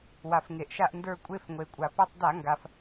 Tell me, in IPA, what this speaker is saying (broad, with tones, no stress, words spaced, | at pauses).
wa˩fŋe˩ʔʃa˦˨ʔndə˞˦˨ kʷʼe˦˨fŋʷe˩kʷʼa˩ pɛ˦˨tˤda˧˩˧ŋɡa˩f